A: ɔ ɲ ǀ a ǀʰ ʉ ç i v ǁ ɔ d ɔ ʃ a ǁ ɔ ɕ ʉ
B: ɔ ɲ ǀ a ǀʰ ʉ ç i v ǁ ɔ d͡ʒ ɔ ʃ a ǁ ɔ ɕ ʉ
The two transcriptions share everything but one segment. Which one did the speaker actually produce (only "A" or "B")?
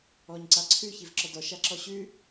A